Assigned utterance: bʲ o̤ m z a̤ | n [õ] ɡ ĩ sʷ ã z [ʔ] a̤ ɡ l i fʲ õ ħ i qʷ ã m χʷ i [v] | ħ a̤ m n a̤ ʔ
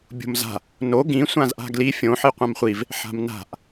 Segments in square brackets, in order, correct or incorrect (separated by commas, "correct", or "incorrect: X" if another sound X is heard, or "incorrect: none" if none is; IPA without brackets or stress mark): incorrect: o, correct, correct